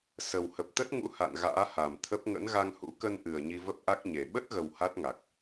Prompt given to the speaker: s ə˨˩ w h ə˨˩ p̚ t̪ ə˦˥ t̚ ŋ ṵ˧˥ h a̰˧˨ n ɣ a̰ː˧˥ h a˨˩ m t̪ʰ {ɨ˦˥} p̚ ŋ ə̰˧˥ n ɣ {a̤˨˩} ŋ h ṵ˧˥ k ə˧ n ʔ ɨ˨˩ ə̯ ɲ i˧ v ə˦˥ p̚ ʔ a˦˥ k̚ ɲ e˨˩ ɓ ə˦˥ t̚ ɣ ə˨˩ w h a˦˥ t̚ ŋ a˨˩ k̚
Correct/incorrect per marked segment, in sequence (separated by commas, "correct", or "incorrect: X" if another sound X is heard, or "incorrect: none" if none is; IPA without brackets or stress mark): incorrect: ə˦˥, incorrect: a˧